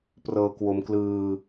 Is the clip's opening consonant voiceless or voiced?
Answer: voiceless